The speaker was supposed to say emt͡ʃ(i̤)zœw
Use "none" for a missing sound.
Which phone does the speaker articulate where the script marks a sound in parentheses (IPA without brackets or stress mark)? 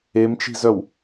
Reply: i̤